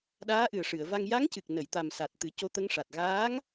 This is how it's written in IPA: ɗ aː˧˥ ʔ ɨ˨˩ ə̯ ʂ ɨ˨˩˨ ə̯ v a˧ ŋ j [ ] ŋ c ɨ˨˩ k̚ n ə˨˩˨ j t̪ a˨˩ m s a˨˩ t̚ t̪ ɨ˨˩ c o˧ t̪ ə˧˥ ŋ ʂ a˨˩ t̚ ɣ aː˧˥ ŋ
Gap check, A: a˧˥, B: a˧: A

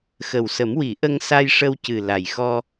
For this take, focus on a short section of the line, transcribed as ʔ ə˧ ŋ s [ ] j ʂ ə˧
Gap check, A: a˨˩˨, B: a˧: B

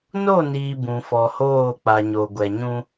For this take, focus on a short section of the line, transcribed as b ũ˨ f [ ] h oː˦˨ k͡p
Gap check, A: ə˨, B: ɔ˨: B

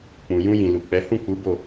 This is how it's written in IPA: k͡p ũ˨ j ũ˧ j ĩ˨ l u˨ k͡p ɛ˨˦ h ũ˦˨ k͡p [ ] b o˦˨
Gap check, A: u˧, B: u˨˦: B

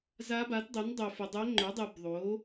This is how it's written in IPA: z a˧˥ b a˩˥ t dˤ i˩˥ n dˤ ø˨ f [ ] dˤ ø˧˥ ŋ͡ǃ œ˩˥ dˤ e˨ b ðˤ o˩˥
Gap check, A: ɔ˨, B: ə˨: B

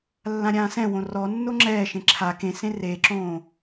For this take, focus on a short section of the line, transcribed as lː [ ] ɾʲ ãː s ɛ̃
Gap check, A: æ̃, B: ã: B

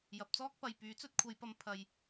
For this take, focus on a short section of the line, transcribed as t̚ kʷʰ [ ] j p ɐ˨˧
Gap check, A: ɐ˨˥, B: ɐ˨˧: B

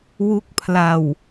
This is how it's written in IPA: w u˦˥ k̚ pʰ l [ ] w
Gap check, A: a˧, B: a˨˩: B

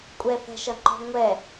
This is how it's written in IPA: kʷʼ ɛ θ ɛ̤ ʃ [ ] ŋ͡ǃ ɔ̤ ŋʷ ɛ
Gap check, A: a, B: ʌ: B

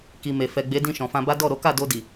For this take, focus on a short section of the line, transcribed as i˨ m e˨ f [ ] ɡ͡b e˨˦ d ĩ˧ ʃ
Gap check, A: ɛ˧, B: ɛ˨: B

